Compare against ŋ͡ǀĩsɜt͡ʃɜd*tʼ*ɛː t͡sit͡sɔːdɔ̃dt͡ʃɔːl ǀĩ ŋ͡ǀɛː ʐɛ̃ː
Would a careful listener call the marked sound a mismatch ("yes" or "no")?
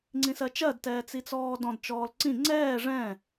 yes